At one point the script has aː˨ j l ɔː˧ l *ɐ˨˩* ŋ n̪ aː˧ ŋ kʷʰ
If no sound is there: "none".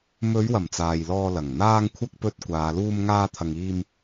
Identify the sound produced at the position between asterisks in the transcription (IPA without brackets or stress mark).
ɐ˨˩